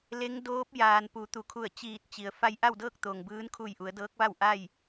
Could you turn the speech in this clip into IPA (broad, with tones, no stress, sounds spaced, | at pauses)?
l e˧˥ ŋ d oː˧˥ p̚ j aː˩ n p u˩˧ t̪ u˩ kʰ u˧˩ ə̯ t͡ɕ iː˧˩ t̚ t͡ɕ i˩ ə̯ f a˧ j ʔ a˥˨ w d ɤː˥˨ k̚ t̪ o˩ ŋ b ɯː˧˥ n kʰ u˧˩ j ʔ u˩˧ ə̯ d ɤː˧˥ k̚ ʋ a˥˨ w ʔ a˥˨ j